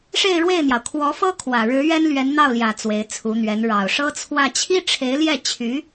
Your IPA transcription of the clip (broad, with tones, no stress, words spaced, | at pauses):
ʂe˥˧ɪ̯ɻwe˥˩ɪ̯n̪jɑ˩ʊ̯ kʰwɔ˧˥fɤ˥ kʰwä˨˩ɻɻ̩˧˥ ɥɛ˥nlɥɛ˧˥nn̪ɑ˥˩ʊ̯ljä˨˩ t͡swe˧˥ɪ̯t͡sʰu˧˥n̪ɥɛ˧˥n ɻɑ˨˩ʊ̯ʂɤ˥ t͡sʰwä˥˩ t͡ɕʰi˥ʈ͡ʂʰe˧˥ɪ̯ljɛ˥˩t͡ɕʰy˧˥